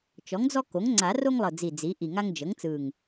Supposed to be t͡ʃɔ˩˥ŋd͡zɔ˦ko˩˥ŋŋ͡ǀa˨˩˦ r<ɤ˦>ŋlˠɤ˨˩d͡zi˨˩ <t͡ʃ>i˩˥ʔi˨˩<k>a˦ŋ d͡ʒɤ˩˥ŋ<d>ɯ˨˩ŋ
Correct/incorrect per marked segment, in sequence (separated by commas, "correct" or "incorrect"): incorrect, incorrect, incorrect, incorrect